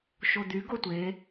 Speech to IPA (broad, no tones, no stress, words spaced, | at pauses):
ʃod̪y ɡotʷe